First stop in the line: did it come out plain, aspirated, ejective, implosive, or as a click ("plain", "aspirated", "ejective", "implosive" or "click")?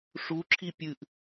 click